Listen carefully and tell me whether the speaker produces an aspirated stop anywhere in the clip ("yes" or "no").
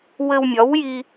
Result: no